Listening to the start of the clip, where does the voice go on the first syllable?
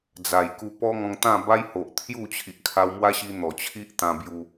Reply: low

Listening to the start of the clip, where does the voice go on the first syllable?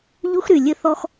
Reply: high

